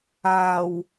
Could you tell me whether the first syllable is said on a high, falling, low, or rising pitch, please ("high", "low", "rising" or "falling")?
low